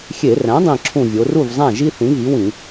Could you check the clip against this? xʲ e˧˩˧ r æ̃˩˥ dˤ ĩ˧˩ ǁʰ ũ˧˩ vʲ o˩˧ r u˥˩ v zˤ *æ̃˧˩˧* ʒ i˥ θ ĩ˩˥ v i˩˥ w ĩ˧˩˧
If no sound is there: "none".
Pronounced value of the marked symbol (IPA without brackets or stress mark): æ̃˥˩